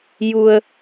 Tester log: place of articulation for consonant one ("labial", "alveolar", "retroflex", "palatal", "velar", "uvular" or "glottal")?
palatal